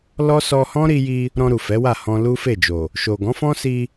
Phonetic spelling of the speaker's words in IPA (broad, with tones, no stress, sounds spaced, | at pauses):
l ɔ˦ s ɔ˧ h ɔ̃˦ ɾ i˧ j i˧ | ɾ ɔ̃˧ ɾ u˨ f ɛ˨˦ w a˦˨ h ɔ̃˧ l u˦ f e˦˨ d͡ʒ o˨ | ʃ o˨ ɡ ɔ̃˨˦ f ɔ̃˦ s i˧